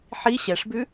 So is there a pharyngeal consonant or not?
yes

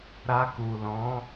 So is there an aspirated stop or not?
no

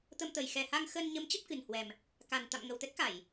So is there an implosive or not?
no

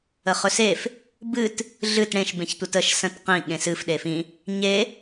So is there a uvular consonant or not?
yes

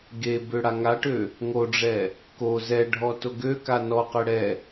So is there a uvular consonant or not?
yes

